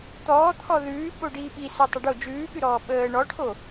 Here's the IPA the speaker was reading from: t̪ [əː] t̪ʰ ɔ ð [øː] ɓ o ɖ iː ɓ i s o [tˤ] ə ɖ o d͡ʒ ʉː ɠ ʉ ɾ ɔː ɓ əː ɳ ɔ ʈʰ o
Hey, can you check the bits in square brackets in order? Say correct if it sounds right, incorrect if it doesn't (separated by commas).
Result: incorrect, incorrect, correct